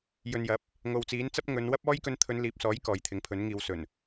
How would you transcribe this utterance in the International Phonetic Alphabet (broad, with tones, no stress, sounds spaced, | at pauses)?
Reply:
j ɵ˨ n j ɐ˨˥ p̚ | ŋ o˨ w t͡s iː˨˥ n t͡s ɐ˥ p̚ ŋ ɵ˨˧ n w ɐ˥ p̚ ɔː˥ j k ɵ˧ n t̪ʰ ɵ˨˧ n l iː˨˥ p̚ s ɔː˨˥ j k ɔː˨ j t̪ʰ ɪ˨˥ ŋ pʰ ɵ˨˥ n ŋ iː˨ w s ɵ˨˩ n